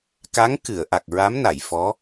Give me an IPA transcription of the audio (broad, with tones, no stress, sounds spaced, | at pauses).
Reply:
k a˧˥ ŋ k ɨ˨˩˨ ə̯ ʔ a˨˩ k̚ ɹ a˧˥ m n a˨˩˨ j f ɔ˧˥